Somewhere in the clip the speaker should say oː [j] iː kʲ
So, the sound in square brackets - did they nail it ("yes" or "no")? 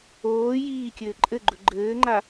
yes